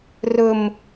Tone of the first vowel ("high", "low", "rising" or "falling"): low